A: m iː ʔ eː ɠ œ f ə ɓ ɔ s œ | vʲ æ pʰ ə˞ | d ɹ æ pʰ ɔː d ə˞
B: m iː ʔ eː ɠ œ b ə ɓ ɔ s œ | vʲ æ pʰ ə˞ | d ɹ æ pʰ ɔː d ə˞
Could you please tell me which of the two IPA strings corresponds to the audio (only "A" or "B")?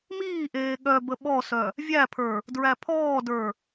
B